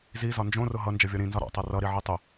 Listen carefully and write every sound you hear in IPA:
z i z ɒ n d͡ʒ õ r ʊ ɦ ʌ n d͡ʒ ʌ vʲ ɔ ɾ ĩ n z ɒ ɾ ɔ̰ tˤ ɤ r ʌ ɾ i ʕ i tˤ ʊ

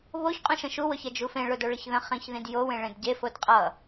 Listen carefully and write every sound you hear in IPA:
β o ç qʼ ũ ʃ ə̃ ʃ u w ʊ ç ɛ d͡ʒ u f ẽ ɭ ʊ d o ɭ ə ç ð ə̃ χ ĩ ç ð ĩ d j o w ẽ ɭ ẽ d ɟ e f o d qʼ ʌ

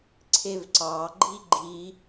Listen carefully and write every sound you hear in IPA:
ǀʰ e v ǀ ɑ ɡ͡ǃ i ɡ͡ǃ i

